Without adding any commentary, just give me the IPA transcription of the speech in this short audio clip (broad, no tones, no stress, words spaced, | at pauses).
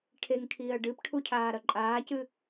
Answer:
ʈʰeŋkʰiːɐ̯ ɖɨpʈʰucʰaːɾɐ ǃʼaːcɨ